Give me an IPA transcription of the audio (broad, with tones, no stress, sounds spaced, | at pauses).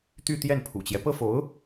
t̪ y˥˧ t̪ j ɛ˥˩ n pʰ ṵ˨˩ t͡ɕ j ɛ˦ p ɤ˥ f o˧˥ ʊ̯